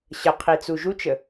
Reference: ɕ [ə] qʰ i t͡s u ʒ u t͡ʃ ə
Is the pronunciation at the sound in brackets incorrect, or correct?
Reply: correct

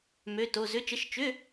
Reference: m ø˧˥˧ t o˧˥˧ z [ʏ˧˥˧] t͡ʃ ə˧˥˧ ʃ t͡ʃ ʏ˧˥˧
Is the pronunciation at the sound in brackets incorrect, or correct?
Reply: correct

